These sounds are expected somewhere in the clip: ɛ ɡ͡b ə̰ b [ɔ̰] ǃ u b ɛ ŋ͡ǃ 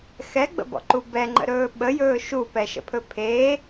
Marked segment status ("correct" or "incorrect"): correct